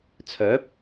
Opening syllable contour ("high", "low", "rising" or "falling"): rising